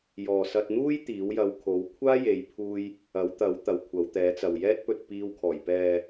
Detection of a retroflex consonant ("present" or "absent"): absent